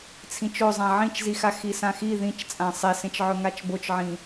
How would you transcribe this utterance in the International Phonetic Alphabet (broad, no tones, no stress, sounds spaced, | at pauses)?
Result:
t͡sʰ ĩ t͡ʃ o zˤ ã ʕ ĩ t͡ʃ z i x a x i s ã x i ð ĩ t͡ʃ t͡sʼ ã sˤ e s ẽ t͡ʃ ʕ ɵ ŋ a t͡ʃ b o t͡ʃ ʕ ĩ